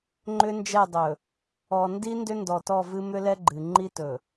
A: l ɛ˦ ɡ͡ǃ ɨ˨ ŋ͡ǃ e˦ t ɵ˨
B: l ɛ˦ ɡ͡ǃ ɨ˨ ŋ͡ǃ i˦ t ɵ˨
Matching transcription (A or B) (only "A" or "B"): B